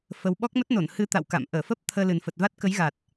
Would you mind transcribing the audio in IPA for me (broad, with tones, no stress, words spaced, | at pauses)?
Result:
fə˧w ɓɔ˦˥k̚mə˦˥t̚no˧˩n hɨ˧t̪a̰˧˨w ka̰˧˨m ʔəː˧˩fə˦˥p̚ t̪ʰəː˧lɨ˨˩nfə˨˩t̚va˦˥t̚ kə˨˦jɣa˨˩t̚